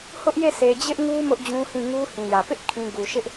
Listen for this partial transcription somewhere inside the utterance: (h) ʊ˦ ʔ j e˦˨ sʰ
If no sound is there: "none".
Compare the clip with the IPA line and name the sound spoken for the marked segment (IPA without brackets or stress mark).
h